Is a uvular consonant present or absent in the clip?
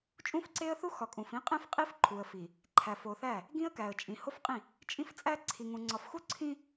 present